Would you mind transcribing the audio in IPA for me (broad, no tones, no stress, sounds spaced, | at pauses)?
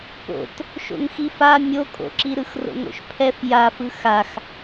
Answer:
p o̰ t | ʃ o̰ ŋ x i f a mʲ o kʼ o̰ ǁ i ɾ ɯ x r o̰ ŋ o̰ ʃ pʰ ɛ f j a f ɯ x a x